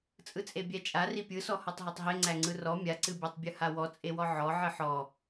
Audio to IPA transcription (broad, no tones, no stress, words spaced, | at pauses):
t͡sʼɯt͡sʼebʲæt͡ʃʼa ripʲɯsɔ hɔtˤɦetˤɦeŋ͡ǀæ ŋ͡ǀɯrɔ mʲaǀɨbʲætˤbʲɯ hawɔ t͡sʼewɔʕɔ ʕɨħɔ